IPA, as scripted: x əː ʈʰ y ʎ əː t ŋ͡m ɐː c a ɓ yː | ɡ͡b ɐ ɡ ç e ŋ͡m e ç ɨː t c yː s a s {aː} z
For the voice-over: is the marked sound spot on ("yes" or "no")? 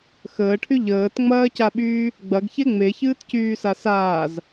yes